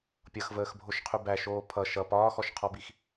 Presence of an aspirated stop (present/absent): present